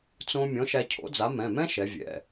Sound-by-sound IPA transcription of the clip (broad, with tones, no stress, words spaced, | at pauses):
t͡sõ˧ mʲɔ̃˨˥ʃæ˧cʰo̰˨˥d͡za˨˥ mɛ̃˩˧˩mɛ̃˥ʃɛ˩˧ vʲɛ̰˩˧˩